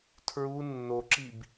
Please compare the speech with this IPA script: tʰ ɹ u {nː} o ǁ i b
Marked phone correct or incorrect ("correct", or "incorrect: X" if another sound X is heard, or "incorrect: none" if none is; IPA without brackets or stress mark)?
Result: correct